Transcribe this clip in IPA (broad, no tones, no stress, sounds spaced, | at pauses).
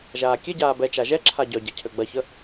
ʒ aː kʲ e ɟ aː b ɛ t͡ʃ a ʒ ɛ ǁʰ a ɟ œ ɟ ɐ cʰ ø ɡ͡b ɐ ç ə